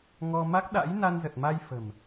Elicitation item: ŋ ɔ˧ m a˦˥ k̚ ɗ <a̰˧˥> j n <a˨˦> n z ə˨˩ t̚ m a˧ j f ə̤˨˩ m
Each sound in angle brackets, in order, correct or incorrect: correct, incorrect: a˧

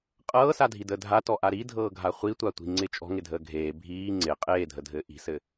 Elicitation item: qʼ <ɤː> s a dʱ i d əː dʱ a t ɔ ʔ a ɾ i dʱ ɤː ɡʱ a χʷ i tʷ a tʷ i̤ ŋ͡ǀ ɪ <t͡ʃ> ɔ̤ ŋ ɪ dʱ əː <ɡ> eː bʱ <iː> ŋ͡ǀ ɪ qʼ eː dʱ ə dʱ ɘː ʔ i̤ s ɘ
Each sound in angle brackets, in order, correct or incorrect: correct, incorrect: t͡ʃʼ, incorrect: ɡʱ, correct

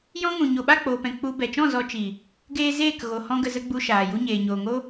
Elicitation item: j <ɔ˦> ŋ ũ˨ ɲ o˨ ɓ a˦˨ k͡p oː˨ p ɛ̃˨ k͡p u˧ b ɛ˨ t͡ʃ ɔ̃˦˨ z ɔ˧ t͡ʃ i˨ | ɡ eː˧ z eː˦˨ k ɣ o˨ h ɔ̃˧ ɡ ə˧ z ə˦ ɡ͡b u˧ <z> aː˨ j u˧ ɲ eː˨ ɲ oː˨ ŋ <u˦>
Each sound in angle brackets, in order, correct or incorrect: incorrect: ɔ̃˦, incorrect: ʃ, incorrect: o˦

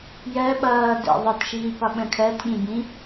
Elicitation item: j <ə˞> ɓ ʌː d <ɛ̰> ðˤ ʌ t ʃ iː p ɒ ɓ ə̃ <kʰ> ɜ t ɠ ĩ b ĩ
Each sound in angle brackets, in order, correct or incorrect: incorrect: ɜ, correct, correct

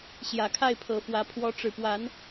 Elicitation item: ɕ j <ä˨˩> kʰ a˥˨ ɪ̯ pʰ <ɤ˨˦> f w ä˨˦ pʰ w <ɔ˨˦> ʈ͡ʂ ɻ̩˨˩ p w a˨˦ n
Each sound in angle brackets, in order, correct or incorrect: correct, incorrect: ɤ˨˩, correct

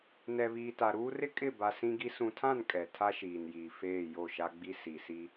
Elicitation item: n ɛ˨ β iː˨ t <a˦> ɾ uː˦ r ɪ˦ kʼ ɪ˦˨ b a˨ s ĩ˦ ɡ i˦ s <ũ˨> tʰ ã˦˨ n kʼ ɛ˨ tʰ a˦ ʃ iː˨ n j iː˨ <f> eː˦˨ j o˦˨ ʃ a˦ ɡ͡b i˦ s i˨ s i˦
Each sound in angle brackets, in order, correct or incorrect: incorrect: a˨, correct, correct

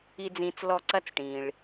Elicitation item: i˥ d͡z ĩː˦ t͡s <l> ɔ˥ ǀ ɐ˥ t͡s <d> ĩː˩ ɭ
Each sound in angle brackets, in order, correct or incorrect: correct, incorrect: ʈ

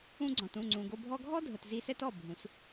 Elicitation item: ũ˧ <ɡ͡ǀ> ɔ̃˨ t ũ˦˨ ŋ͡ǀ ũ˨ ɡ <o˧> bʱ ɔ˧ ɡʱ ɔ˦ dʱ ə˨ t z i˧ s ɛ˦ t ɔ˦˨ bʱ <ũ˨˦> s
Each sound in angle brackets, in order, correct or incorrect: correct, correct, correct

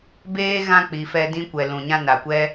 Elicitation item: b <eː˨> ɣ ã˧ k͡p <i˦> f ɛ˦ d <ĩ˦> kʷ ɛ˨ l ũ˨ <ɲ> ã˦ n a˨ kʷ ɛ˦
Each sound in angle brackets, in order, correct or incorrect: incorrect: eː˦, incorrect: i˨˦, correct, correct

